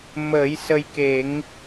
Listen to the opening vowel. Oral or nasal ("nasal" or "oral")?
oral